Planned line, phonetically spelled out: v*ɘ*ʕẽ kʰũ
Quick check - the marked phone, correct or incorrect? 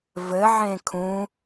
correct